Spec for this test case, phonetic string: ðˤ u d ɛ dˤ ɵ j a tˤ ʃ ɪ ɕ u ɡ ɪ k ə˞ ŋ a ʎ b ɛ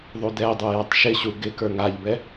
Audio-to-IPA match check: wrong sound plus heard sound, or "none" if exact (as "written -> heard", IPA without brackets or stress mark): none